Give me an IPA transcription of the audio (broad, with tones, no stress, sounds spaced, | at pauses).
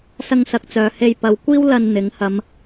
s ɐ˧ ŋ s ɐ˨ k̚ t͡s œː˨ h e˧ j p ɐ˨˧ w kʷ iː˥ w l ɐ˧ n n̪ ɪ˨˥ ŋ h ɐ˨˧ m